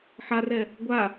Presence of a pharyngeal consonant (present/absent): present